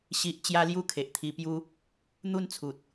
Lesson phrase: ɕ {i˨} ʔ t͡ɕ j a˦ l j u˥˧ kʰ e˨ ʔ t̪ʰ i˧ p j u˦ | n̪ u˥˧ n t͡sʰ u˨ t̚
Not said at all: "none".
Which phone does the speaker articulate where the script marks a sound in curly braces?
i˨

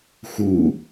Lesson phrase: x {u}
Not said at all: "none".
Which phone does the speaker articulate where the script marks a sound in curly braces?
u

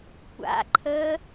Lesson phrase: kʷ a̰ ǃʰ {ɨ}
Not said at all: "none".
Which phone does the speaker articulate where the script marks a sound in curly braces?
ə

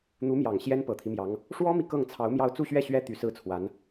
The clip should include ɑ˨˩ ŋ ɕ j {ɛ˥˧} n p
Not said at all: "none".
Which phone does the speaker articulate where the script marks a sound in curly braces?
ɛ˥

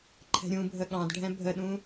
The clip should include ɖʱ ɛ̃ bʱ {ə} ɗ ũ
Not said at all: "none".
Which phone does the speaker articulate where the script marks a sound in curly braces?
ə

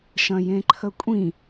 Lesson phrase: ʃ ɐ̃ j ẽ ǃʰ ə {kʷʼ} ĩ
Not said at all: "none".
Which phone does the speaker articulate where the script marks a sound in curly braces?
kʷʼ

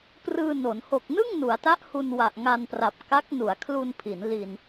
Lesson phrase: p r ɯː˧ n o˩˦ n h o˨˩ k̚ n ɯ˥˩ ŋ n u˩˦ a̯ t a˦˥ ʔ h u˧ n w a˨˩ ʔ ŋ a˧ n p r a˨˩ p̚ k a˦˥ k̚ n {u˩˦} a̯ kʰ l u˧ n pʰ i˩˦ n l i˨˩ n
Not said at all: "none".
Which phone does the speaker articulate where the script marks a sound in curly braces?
u˩˦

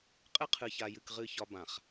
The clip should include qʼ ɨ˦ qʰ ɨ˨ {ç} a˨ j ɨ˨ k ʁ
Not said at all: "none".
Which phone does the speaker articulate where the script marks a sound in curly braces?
ç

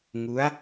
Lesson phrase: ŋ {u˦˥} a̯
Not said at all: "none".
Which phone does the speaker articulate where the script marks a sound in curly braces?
u˦˥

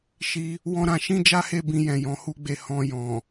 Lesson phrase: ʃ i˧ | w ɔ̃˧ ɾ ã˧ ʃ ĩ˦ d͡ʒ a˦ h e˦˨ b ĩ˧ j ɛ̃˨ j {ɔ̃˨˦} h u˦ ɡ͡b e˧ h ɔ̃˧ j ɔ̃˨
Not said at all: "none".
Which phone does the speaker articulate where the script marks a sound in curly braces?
ɔ̃˨˦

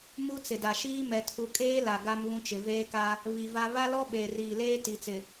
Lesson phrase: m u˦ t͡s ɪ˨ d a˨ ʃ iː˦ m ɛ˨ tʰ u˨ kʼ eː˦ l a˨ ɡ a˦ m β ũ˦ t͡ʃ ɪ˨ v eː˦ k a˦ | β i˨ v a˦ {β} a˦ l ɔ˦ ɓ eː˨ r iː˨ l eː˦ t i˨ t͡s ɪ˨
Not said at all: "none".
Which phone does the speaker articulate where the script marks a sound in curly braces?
β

